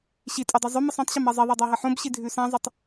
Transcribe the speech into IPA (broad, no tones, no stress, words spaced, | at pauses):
ɕi tʼudˤʉzˤʉmɨsˤ ũtˤɕɐm ɐzˤiðˤɐ dˤaɦɐħõbɕi dʱʉsãzˤɐtˤ